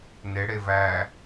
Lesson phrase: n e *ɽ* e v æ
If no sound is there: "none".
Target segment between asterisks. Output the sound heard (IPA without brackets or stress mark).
ɽ